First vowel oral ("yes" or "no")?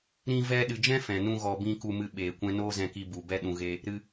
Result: no